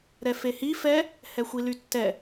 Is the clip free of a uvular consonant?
yes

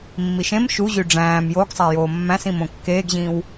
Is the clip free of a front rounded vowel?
no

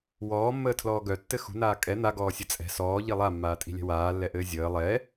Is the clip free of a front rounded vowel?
no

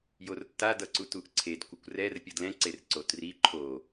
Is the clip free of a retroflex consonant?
yes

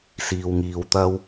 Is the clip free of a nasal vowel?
yes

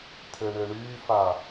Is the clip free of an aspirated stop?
no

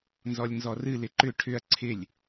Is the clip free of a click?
no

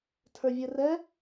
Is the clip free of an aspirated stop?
no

